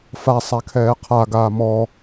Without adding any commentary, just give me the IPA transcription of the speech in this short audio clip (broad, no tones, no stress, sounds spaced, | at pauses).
f a sˤ a kʰ ɛː qʰ a ɡ aː m ɔ